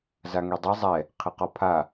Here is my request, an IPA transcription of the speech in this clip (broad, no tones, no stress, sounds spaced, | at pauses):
z a ŋ e dˤ i zˤ ɛ | qʰ ɪ q ɔ pʰ a